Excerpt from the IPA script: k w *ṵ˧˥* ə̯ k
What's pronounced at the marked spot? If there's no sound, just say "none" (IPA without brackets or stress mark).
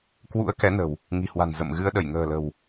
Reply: ṵ˧˥